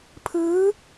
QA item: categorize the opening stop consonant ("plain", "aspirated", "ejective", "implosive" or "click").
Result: aspirated